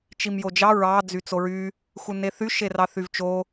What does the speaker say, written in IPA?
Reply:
t͡ʃ i m j o d͡ʒ ɑ ɹ ɑ d͡z y t͡s o ɹ y | x u n e θ y ʃ e r ɑ θ y v t͡ʃ o

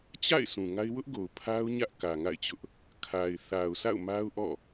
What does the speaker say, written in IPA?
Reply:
t͡ɕ a̰˦˨ ɪ̯ sʰ ũ˨ ŋ a˦ ɪ̯ w ʊ˦ ʔ ɡ o˨ ʊ̯ pʰ a˦ ʊ̯ ɲ ä˦ ʔ k ä˨ ŋ a̰˦˨ ɪ̯ t͡ɕ ʊ˦ ʔ | kʰ a˨ ɪ̯ θ a˨ ʊ̯ sʰ a̰˦˨ ʊ̯ m a˦ ʊ̯ ʔ ɔ̰˦˨

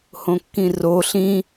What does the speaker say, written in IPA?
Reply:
h õ kː ĩ r o ɬ ĩ

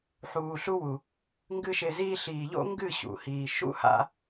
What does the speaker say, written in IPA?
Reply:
ħ uː˨ ɬ u˧ w u˨ | ŋ ɡ ɨ˦ ʃ e˧ z iː˦ ɬ iː˨ ʎ o̰˦ ŋ ɡ ɨ˦˨ ɕ ṵ˨ h iː˨ ʃ ṵ˦ h a̰˧

